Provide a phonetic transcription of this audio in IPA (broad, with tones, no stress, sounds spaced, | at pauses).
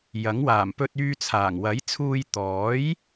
j ɐ˨˥ ŋ w aː˨˩ m p ɵ˧ t̚ yː˧ t͡sʰ aː˨˩ ŋ w ɐ˨˥ j t͡sʰ uː˧ j t̪ ɔː˨˥ j